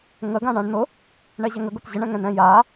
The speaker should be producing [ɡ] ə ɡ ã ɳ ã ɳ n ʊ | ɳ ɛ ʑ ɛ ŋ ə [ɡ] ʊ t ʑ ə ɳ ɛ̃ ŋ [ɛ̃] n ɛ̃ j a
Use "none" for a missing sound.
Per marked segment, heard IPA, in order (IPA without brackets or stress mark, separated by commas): ŋ, ɡ, ɛ̃